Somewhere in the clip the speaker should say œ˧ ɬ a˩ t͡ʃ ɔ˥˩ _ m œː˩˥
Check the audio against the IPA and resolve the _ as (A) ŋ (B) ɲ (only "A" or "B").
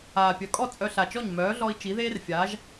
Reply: B